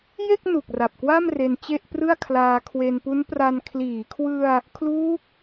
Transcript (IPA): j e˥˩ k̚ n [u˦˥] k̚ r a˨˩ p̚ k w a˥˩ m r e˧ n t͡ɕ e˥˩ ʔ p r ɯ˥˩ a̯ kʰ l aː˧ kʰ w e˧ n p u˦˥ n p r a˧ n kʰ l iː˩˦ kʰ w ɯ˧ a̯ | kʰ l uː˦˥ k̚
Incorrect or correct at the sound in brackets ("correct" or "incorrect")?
incorrect